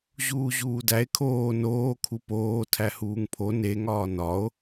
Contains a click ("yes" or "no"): no